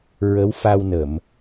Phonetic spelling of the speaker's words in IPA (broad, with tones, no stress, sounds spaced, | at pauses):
ɹ ə˧˥ w f a˧ w n ə˨˩˨ m